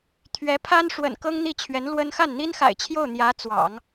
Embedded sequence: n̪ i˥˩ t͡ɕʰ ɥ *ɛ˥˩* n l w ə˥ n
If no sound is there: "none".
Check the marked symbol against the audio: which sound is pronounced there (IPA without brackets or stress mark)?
ɛ˧˥